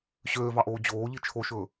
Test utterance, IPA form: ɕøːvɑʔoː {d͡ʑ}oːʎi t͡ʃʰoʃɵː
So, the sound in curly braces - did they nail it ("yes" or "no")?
yes